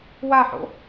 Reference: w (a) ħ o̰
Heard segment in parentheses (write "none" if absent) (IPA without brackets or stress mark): a